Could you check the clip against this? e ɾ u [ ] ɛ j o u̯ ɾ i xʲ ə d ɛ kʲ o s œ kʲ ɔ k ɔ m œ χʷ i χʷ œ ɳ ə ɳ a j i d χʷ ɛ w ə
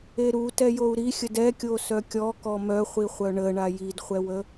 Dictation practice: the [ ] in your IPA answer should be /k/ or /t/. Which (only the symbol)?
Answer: t